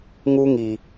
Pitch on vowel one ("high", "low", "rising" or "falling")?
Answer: high